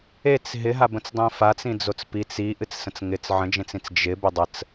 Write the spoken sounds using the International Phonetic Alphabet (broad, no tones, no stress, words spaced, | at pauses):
et͡s ɦɪɦabə̃t͡sdˤĩ fat͡sĩd͡zot͡s pit͡s i ʔɨt͡ssə̃t͡sŋɪt͡s ʕə̃d͡ʒẽt͡sĩt͡s d͡ʒɪ bɪdˤət͡s